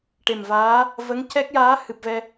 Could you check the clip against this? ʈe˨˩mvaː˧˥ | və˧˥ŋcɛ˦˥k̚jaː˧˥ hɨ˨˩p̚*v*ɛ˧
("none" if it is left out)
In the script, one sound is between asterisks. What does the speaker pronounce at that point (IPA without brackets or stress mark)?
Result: v